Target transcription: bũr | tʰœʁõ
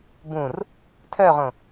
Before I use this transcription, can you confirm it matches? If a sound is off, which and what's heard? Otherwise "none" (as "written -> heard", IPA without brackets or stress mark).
none